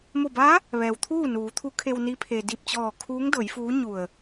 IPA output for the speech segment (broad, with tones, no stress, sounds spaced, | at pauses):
m o˧˩ b a˧˥ | ʋ ɛː˩ w t̪ʰ uː˥˨ n uː˩˧ t̪ʰ u˧˥ kʰ e˧ w n i˧˥ pʰ e˩ d i˧˩ p̚ t͡ɕ ɔː˧˩ kʰ uː˧˥ ŋ d ɤː˩˧ j f uː˧˥ ɲ u˧˩ ə̯